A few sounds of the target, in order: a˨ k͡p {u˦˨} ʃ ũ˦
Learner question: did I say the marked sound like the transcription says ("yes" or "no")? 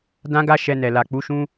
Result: no